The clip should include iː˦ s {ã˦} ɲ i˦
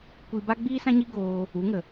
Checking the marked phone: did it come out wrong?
no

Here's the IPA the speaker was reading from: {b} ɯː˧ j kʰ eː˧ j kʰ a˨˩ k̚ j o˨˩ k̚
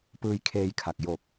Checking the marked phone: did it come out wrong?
yes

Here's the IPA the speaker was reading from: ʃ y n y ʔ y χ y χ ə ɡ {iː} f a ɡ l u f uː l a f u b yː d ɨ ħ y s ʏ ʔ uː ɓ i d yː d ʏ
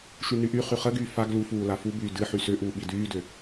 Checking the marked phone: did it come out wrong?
yes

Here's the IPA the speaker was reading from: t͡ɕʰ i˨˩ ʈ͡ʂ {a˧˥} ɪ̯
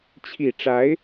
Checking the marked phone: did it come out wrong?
no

